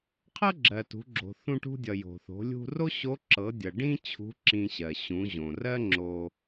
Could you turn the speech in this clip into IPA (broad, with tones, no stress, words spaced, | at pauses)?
qʰɤ˥ ɡ͡ǁɜ˩tṳ˩˧ɡ͡ǁo̤˩ θũ˧ʈṳ˧dʲʌ˩ jo̤˩θo̤˩˧ lʲṳ˧ro˥ɕo˧˥ ǁɤ˩˧dʲʌ˩ ɖĩ˥ t͡ɕʰṳ˧˥ ǁĩ˧ɕɜ˩ ɕũ˩˧ ʑõ˩rɜ˥ ŋ͡ǁo˧